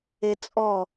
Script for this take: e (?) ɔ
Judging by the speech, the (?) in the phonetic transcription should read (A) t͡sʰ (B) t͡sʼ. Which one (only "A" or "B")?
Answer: B